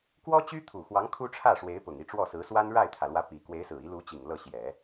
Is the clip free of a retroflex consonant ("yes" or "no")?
no